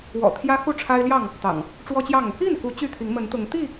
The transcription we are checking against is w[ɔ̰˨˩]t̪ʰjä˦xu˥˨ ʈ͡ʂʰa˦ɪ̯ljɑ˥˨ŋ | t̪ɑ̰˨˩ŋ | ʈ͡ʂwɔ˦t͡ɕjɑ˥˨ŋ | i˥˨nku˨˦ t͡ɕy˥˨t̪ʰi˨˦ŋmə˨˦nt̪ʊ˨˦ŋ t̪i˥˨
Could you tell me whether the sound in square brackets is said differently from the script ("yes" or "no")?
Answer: no